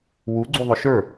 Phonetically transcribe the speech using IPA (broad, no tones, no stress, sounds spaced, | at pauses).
w u ɡ͡ǀ u ðˤ ʊ ʃ ə˞